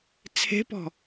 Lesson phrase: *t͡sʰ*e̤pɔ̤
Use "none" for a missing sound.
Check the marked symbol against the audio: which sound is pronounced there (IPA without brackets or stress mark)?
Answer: t͡sʰ